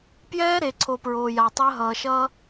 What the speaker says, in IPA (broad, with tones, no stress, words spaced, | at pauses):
pjɛː˦ɾe˨ǀʰo˨ pɹoː˨ja˨tˤəː˦ ɦʌː˨ʃʌː˦